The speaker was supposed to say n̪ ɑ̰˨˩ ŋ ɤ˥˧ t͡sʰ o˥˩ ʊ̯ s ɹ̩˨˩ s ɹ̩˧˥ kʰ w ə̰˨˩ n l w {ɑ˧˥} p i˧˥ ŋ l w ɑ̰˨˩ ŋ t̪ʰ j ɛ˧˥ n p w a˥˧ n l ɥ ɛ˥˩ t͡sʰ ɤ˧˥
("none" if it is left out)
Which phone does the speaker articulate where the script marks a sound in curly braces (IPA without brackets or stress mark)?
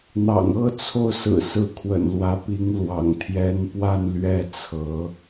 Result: ä˧˥